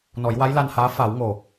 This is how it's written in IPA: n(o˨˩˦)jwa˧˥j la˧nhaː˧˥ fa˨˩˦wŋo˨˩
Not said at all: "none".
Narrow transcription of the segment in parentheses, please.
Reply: ɔ˨˩˦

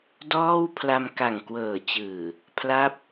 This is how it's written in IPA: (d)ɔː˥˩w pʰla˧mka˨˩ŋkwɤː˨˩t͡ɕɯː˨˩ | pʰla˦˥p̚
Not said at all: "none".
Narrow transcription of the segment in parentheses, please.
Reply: d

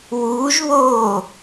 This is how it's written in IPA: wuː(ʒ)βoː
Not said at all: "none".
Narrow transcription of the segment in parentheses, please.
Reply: ʒ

